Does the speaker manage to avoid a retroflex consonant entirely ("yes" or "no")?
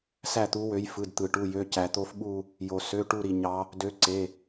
no